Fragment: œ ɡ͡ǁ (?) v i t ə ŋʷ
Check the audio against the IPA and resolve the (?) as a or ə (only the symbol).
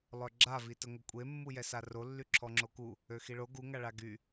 a